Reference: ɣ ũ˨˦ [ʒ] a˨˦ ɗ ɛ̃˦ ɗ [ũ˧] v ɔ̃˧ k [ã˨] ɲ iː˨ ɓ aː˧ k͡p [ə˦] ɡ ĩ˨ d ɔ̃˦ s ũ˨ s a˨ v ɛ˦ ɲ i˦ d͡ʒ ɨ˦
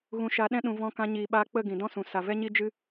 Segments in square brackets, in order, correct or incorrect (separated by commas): incorrect, correct, incorrect, incorrect